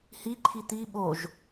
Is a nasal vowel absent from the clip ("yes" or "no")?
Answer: yes